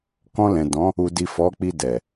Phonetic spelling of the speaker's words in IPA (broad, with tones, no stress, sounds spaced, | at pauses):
k ɔ̃˧ l ɛ̃˨ d ɔ̃˨˦ | u˨ d i˨ f ɔ˨˦ k͡p i˧ d ɛ˨